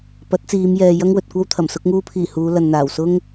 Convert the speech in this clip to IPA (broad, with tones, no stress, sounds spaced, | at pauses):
p ɐ˨˥ t̚ t͡s iː˨˧ m j ɛː˨ j ɐ˥ ŋ w ɵ˨ t̚ kʷ ɐ˥ w t̪ʰ ɐ˨˩ m s ʊ˧ k̚ ŋ uː˧ pʰ iː˨˩ h uː˨˧ l ɐ˨ n n̪ aː˨˩ w s ʊ˥ ŋ